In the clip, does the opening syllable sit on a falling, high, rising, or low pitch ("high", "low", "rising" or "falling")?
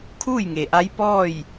falling